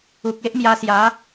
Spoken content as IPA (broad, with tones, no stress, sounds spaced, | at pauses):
u˨ k̚ e˦ ʔ m j a˧ s j a˨˦